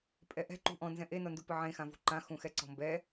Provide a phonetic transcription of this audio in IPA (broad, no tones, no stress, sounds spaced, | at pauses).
pʼ ɛ ʔ ɛ̤ ǃ ṳ ʔ ɔ̃ n z ɛ̃ ʔ e n ɔ n d u p ɨ ʕ ẽ x ã v ṳ ǃ ã x ũ x ɛ ǀ ɔ̤ m b ɛ